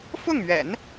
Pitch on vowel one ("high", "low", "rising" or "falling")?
falling